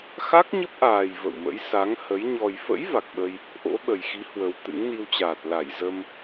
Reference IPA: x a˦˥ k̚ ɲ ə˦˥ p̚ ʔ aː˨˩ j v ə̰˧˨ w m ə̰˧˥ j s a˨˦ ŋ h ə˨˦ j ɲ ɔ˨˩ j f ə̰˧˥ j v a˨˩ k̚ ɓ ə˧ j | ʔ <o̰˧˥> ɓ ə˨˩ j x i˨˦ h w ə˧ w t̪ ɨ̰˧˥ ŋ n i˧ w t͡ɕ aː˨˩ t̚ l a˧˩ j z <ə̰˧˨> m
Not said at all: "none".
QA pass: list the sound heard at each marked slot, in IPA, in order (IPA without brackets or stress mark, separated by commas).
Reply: o̰˧˥, ə˧